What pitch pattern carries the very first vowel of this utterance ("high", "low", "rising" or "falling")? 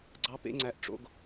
high